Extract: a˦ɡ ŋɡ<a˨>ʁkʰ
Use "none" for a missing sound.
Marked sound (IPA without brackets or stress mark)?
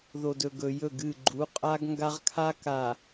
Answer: a˦